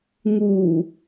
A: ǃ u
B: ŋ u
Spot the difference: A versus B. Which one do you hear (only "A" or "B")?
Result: B